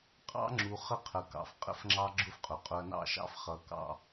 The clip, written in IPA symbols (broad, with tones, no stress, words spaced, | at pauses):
qʼɑ̰˦ŋ͡ǁu˨ χə˦qʰə˨kɑ̰˨f qʼə̰˦fŋ͡ǁɑ˦ɡ͡ǁʊ˦f qʼʊ˨ qʼʊ˨ɐ̯nɑ̰˦˨ʃɑ̰˦f χʌ˨kɑ̰˦